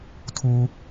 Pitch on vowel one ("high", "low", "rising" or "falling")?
low